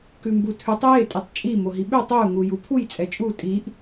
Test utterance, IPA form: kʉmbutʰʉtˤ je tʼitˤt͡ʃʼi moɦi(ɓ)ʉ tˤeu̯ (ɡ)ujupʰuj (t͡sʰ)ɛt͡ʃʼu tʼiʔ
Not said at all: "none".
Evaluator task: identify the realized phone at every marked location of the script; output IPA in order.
ɓ, ŋ, t͡sʼ

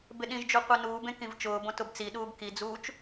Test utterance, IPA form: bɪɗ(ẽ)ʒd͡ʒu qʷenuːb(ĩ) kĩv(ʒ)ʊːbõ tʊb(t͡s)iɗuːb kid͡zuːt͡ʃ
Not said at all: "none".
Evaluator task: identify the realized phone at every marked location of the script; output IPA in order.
ĩ, ẽ, t͡ʃ, t͡s

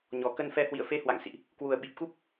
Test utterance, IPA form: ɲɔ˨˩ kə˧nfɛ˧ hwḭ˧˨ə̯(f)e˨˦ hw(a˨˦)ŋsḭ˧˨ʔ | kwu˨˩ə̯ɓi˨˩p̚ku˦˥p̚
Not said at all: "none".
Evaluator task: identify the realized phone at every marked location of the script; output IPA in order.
f, a̰˧˨

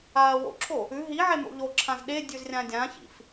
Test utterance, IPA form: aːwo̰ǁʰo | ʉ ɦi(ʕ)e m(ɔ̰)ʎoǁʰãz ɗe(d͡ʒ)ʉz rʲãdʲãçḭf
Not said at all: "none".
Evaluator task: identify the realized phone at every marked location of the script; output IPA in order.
ʕ, o̰, dʲ

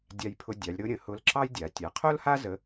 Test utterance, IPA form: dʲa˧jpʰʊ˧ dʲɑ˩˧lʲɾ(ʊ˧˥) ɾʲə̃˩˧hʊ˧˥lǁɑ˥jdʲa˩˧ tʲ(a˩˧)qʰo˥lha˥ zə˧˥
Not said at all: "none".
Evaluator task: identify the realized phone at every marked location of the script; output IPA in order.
ʊ˧˥, a˩˧

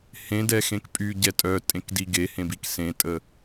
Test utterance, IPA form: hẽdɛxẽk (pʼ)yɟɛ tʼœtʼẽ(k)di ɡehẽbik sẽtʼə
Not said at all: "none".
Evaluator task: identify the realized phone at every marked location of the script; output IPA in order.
pʼ, k

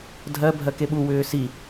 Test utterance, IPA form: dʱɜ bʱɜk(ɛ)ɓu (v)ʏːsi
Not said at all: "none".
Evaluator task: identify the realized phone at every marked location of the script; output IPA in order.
e, w

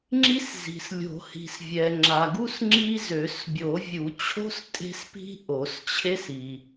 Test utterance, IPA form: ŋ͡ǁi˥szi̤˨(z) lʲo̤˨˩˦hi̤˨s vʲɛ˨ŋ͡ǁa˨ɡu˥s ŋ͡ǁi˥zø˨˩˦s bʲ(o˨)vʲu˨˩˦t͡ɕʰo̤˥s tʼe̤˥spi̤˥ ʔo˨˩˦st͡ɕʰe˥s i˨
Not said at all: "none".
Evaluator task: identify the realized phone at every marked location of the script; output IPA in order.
s, o˨˩˦

